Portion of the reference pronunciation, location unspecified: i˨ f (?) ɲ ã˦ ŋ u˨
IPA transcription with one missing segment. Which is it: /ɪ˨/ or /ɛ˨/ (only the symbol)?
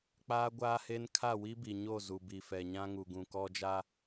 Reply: ɛ˨